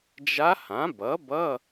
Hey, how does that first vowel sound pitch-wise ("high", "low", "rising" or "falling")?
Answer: rising